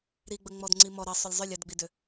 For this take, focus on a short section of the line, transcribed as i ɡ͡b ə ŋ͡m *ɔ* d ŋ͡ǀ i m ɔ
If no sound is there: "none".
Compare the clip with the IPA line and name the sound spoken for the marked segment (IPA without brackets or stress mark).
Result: ɔ